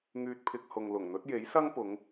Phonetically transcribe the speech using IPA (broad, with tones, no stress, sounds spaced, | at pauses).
ŋ yː˧ t̚ pʰ ɪ˧ k̚ h ʊ˨ ŋ l ʊ˨˩ ŋ n̪ ɵ˨˥ t̚ j e˨˥ j s ɐ˥ ŋ p ʊ˨˧ ŋ